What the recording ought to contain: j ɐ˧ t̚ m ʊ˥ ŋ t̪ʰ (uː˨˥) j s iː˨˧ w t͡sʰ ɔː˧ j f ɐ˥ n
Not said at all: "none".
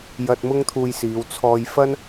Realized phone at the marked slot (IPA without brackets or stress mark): uː˧